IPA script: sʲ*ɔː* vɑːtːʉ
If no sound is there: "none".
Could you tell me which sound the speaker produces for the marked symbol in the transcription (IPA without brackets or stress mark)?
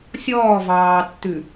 ɔː